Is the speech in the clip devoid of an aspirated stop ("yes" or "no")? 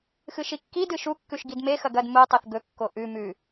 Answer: yes